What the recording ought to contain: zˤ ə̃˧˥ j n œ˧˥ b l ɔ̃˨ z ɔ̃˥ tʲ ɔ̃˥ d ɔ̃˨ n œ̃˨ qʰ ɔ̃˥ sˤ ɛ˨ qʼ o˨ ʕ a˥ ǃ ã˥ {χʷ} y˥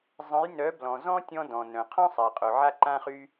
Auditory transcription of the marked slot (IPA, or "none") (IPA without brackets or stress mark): χ